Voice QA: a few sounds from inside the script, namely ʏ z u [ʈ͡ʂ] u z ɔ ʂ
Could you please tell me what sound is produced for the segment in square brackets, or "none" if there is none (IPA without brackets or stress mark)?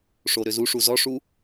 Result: ʂ